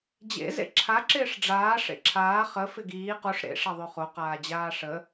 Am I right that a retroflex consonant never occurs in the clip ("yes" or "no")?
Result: no